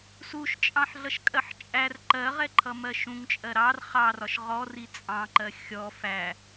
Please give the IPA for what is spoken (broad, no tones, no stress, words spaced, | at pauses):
suʃt͡ʃʼɑ̃ħɮʌʃkʼɜħ t͡ʃʼær ǃɜʁɛǃʰʌmɜ ʃũŋt͡ʃʼɜ ɾɑr χɑrɒʃ ʁɔri t͡sʼɑ̃ǃɜ xʲɔ fæ